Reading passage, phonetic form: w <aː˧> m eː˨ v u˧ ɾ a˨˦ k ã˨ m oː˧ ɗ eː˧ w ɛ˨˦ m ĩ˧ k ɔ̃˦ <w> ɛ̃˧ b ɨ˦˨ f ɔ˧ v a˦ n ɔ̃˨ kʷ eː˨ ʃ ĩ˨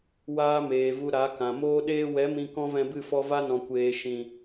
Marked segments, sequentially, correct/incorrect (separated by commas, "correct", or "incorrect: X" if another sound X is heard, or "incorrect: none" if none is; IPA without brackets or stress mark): incorrect: aː˦, incorrect: v